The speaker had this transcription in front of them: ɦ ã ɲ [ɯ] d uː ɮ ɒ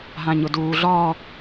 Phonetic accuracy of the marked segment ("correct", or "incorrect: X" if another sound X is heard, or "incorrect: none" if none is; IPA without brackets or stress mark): incorrect: ʊ